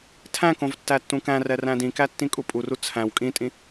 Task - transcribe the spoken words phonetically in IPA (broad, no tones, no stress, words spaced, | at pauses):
tʰæ̃kõv tːætːũkæ̃rɛ ræ̃dĩkæ tːĩkʼupʼuru t͡sʰæ̃w kʼĩtʼĩ